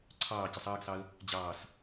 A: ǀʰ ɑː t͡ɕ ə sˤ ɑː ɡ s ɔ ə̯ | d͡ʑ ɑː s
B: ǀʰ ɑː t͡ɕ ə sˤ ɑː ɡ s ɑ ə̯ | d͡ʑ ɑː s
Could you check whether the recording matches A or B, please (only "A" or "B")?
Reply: B